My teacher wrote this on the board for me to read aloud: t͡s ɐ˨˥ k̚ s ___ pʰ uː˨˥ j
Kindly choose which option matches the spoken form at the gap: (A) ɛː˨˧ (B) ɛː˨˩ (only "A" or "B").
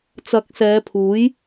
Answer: A